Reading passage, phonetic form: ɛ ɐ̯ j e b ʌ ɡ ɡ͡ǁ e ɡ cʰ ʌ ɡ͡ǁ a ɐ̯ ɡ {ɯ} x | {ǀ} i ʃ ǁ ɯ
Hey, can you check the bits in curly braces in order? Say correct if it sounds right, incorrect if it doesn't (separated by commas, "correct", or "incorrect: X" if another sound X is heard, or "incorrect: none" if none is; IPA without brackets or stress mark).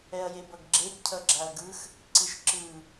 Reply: correct, correct